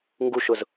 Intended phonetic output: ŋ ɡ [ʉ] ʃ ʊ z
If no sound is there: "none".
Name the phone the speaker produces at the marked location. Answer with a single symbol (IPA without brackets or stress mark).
u